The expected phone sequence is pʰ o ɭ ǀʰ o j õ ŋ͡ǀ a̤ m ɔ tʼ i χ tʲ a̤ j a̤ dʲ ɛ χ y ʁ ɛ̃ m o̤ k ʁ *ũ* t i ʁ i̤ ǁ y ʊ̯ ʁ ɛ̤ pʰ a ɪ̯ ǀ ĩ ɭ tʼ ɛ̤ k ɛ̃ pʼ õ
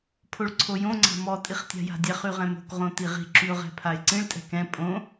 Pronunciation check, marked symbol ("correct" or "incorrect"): incorrect